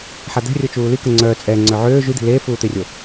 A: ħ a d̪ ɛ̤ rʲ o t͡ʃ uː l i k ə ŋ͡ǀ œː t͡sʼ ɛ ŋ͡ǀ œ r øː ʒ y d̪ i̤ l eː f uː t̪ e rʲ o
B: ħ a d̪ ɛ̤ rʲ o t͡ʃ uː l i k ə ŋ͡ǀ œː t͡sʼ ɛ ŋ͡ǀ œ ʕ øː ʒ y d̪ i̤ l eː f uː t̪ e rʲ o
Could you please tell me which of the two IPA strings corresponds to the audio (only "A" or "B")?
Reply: B